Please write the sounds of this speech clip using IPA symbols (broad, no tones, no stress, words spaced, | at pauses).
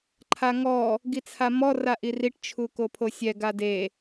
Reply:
ǃʰaŋɔ | ɡit͡sʰamɔ raʔiriʈ t͡ʃʰukopʰosʲɛ ɡade